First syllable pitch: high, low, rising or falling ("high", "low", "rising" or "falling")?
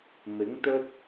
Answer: rising